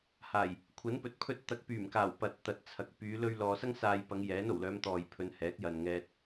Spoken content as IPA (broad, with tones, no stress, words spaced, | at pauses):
haː˨˩j | kʷʰɐ˨˥npɵ˨˥t̚ pʰɵ˧t̚ t̪ɐ˨˥k̚pyː˨˩mkaː˨˩w pɐ˨t̚t̪ɐ˨t̚t͡sʰɐ˨k̚ pyː˨˧lɵ˧ɥ lɔː˨sɐ˥ŋ saː˧j pɐ˨˧ŋjɛː˨˥no˨˩wlœː˨˧m t̪ɔː˨jpʰɵ˨˧nhɛː˨˥k̚ jɐ˨n ŋɛː˧t̚